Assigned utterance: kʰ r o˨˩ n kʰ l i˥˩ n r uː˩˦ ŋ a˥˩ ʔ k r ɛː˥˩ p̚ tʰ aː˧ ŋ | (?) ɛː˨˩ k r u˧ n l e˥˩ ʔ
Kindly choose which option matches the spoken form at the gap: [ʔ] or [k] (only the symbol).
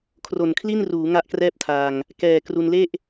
k